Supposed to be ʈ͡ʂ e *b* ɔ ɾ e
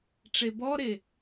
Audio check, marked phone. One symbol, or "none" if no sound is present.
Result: b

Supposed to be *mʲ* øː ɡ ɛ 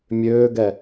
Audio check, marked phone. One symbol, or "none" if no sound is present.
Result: mʲ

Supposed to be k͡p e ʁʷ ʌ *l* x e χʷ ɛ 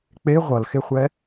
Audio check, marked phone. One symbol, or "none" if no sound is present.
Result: l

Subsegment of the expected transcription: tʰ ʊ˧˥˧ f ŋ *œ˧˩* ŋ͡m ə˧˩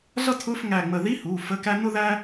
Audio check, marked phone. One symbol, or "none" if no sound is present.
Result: æ˧˩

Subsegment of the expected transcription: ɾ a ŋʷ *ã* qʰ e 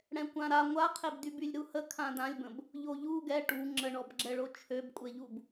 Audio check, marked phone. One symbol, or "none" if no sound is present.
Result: a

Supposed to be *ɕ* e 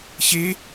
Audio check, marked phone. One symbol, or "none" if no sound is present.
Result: ɕ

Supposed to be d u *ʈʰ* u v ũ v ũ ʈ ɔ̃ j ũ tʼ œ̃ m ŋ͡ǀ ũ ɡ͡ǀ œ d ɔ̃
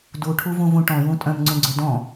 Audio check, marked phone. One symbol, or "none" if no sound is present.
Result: ʈʰ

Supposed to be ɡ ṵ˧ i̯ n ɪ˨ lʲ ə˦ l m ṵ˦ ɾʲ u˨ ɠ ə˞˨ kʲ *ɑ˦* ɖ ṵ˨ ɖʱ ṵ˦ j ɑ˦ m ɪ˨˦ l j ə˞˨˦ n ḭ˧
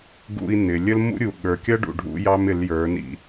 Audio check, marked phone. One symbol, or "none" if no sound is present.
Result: ʌ˦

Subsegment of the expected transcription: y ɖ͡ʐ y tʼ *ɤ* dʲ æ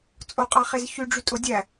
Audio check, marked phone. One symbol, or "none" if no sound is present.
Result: o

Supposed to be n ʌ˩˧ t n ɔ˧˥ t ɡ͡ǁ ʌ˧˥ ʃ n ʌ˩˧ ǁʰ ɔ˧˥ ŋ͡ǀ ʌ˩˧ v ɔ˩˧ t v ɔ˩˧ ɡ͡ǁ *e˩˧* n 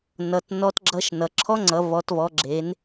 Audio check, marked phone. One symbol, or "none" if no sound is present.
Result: e˩˧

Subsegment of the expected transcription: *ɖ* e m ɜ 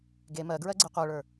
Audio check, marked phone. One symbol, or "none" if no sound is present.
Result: ɡ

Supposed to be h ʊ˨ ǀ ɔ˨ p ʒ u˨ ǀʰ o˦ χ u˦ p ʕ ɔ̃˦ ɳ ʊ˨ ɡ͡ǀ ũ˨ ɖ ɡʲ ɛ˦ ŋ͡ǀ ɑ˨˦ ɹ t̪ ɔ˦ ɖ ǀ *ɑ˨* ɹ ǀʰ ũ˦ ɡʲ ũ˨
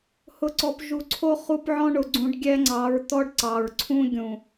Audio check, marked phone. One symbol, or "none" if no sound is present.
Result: ɑ˨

